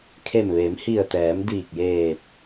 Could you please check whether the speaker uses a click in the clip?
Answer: no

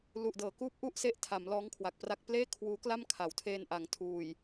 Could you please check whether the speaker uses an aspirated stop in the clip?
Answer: yes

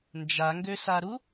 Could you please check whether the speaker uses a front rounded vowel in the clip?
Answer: yes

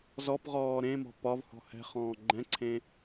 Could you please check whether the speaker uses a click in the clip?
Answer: yes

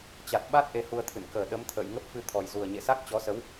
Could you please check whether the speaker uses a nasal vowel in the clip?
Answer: no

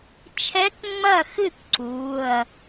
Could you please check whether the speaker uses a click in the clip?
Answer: yes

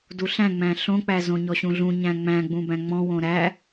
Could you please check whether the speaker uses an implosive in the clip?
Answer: no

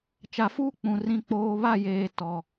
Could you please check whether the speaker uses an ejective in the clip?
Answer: no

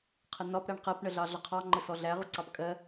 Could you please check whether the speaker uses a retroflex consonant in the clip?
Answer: yes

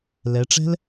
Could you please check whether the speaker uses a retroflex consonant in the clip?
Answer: yes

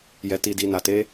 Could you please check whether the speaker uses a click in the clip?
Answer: no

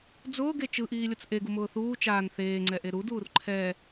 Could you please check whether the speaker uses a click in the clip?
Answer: yes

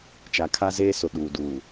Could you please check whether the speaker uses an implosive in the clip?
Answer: yes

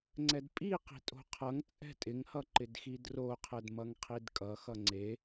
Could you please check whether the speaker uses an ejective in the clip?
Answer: yes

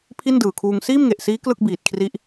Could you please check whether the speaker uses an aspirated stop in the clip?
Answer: yes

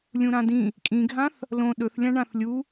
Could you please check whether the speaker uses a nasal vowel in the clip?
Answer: yes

